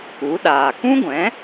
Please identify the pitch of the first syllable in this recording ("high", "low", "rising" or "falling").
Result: rising